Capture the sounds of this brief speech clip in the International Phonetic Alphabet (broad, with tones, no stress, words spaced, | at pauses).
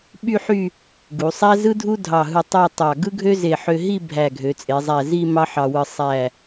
ɓy˥˧ħy˥˧ | ɡu˩˧sˤæ˥ zɯ˥dʱu˥dʱɑ˧˩ ɦɯ˧˩ tˤɑ˥˧tˤɑ˧˩ ɡɯ˥ɡʱø˥ze˧˩ ħø˧ɦi˥˧ bʱæ˧˩ɡʱø˩˧t͡sʼe˩˧zˤæ˧˩ zi˥˧ mɑ˥ħɑ˧wɯ˧ sˤæ˧˩